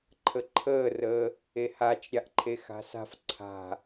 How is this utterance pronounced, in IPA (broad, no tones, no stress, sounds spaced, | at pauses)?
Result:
ǃʰ ə ǃʰ əː r əː | e h a t͡ʃ ɾʲ a ʔ ǃʰ e x a̤ s a̤ f ǀʰ a̤